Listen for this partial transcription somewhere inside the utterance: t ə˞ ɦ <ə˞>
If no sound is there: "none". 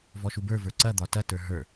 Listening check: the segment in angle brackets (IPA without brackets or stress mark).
ə˞